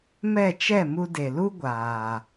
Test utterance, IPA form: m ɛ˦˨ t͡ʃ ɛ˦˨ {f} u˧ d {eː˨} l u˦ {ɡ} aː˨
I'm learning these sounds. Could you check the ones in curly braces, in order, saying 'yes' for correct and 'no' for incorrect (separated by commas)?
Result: no, no, no